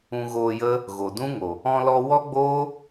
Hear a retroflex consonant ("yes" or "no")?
no